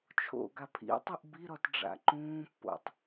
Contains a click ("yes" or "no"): yes